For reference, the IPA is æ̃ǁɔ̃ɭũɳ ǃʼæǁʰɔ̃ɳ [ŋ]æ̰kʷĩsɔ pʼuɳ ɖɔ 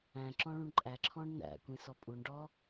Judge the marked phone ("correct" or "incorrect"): incorrect